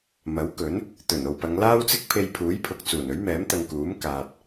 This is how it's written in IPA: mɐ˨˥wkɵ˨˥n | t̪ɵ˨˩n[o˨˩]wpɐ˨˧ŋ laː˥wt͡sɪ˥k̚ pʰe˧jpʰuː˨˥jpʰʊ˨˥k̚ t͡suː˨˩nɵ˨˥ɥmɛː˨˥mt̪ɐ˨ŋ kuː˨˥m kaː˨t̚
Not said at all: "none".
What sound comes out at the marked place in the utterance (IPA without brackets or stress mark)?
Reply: o˨